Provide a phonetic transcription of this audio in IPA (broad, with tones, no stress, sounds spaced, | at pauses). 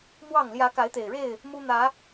m w ɑ˥˨ ŋ l j ä˨˦ k a˨˦ ɪ̯ t̪ e˨˩ ɪ̯ ɻ e˥˨ ɪ̯ | m u˦ n̪ ä˨˦